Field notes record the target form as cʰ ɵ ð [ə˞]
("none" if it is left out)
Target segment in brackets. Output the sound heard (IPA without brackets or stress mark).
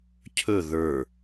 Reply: ə˞